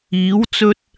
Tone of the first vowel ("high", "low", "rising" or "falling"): rising